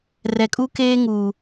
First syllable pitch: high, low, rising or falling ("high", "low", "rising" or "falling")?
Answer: low